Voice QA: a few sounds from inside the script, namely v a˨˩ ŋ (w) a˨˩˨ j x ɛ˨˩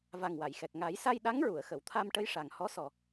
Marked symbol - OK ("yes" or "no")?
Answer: yes